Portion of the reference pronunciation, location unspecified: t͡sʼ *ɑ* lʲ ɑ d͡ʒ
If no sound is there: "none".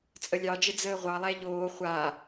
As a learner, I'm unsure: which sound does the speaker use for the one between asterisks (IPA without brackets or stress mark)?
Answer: ə